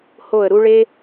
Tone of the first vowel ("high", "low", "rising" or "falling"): falling